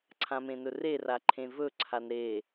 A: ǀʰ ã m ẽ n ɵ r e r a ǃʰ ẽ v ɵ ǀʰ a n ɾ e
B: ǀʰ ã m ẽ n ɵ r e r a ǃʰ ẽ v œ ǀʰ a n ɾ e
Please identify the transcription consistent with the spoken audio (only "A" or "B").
A